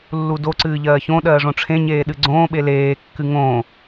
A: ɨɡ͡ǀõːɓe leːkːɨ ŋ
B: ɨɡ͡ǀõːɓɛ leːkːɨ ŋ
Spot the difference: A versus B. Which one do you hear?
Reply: A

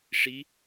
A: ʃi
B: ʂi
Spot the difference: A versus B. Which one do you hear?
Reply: B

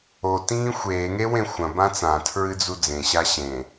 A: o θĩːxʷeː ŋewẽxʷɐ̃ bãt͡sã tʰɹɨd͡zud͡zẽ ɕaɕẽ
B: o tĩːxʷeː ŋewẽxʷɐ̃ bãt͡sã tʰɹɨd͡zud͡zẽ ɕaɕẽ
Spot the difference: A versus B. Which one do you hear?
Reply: B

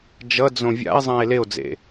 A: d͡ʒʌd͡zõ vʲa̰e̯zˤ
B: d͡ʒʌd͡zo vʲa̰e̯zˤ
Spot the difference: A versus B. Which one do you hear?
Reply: A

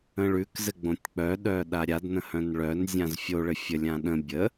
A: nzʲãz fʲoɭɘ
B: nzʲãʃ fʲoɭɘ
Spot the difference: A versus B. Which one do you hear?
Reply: A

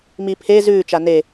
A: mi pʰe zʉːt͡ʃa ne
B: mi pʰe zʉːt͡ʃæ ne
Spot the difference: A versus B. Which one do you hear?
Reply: A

